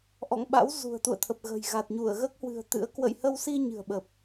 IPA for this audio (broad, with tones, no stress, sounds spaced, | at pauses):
ʔ ɔ̰˧˨ ŋ ɓ a̰˧˥ w z ṳ˨˩ ə̯ t̪ ṵ˧˨ ə̯ t̪ʰ ə˨˩ p̚ ɣ ə̤˨˩ j ɣ a˨˩ t̚ ɲ u˧˩ ə̯ ɣ əː˦˥ k̚ h w ɨ̤˨˩ ə̯ t̪ ɨ̰˧˥ ə̯ k w ə̰˧˨ j h ə˧ w s i˧ ɲ ɨ̤˨˩ ə̯ ɓ ə˨˩ p̚